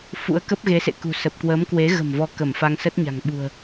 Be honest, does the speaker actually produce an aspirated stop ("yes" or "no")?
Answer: no